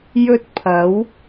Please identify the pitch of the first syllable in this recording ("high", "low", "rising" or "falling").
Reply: high